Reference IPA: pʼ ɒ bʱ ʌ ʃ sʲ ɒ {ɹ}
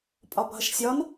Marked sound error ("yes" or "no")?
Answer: yes